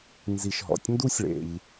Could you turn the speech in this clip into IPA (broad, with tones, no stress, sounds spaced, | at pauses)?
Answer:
n z i˨ ʃ ɦ ɔ̰˨ tʲ n d u˥ sʲ ɭ ḛ˨ ʎ